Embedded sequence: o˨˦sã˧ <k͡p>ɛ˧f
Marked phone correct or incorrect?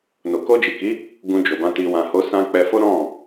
correct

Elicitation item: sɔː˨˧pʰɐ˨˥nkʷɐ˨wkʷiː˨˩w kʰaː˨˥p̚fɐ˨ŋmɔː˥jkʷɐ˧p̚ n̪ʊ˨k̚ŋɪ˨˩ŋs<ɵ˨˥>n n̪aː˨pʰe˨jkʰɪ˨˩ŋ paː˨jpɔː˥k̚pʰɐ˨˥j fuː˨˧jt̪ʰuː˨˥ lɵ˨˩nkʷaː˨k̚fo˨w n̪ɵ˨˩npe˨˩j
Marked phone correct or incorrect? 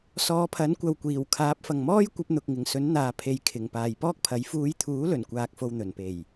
correct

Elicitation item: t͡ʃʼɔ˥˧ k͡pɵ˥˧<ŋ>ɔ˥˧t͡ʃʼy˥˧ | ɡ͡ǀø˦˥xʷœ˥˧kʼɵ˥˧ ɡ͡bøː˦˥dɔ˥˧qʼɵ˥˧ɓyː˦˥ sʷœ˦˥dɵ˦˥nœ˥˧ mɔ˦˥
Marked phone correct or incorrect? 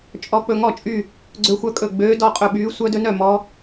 correct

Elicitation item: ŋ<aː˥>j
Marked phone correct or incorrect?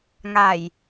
incorrect: aː˨˩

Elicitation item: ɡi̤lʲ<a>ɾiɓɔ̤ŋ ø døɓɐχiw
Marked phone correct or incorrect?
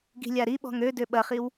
correct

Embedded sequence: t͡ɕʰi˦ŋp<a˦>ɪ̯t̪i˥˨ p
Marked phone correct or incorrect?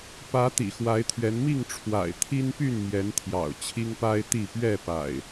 correct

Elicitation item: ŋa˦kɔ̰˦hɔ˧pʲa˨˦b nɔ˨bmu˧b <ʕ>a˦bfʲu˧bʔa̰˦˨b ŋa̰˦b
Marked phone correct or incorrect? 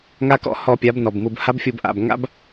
incorrect: h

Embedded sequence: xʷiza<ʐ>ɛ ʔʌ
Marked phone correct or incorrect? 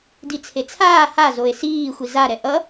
incorrect: ɾ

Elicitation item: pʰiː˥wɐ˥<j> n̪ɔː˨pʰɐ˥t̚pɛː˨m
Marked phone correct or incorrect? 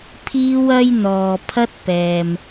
correct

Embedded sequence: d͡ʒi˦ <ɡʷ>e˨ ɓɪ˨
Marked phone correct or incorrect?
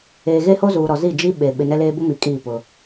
incorrect: ɓ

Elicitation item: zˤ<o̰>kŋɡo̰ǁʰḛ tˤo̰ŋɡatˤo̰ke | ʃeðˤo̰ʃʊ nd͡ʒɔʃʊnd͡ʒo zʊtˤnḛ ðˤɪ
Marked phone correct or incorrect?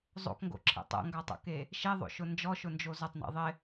correct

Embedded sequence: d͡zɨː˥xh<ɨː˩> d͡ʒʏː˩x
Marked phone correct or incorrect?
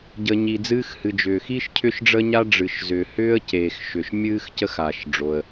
incorrect: ɨ˩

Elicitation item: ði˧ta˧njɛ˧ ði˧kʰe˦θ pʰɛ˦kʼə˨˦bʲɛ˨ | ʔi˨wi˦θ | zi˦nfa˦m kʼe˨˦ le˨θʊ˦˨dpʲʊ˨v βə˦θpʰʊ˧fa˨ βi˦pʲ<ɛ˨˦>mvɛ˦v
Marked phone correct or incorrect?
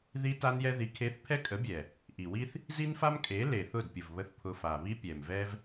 incorrect: ɛ˨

